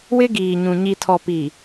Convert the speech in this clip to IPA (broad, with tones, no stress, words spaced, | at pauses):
wɪ˦ɡiː˨ɲũ˨ ɲi˨tʰɔ˨pi˨